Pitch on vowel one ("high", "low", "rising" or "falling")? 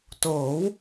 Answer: rising